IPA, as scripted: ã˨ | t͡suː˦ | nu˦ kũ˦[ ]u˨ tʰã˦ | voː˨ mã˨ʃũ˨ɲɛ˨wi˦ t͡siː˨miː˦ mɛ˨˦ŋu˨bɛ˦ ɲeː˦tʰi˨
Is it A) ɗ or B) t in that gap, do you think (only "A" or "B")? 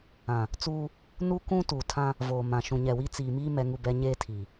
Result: B